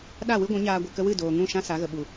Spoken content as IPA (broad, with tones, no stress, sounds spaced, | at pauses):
ɗ a˦˨ w ɨ˦ ɡʷ ũ˨˦ ɲ aː˧ ɡʷ ɨ˨ k ə˧ w ɨ˦˨ d oː˨ ŋ ũ˦˨ ʃ ã˦ s a˨˦ ɣ ə˨ ɓ u˨